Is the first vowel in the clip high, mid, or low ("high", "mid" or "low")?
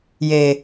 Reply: mid